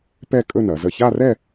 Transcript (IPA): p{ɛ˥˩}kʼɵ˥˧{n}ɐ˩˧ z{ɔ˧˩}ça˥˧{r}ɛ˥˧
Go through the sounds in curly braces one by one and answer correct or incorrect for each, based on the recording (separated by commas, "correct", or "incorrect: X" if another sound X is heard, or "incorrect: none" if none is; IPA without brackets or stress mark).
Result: incorrect: ɛ˥˧, correct, incorrect: ə˧˩, correct